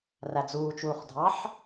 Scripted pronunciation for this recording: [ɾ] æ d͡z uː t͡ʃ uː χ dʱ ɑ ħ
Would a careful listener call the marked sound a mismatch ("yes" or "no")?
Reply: yes